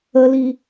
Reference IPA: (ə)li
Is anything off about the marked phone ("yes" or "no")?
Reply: no